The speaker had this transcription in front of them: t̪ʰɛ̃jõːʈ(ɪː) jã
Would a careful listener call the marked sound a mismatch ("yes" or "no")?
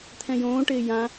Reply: no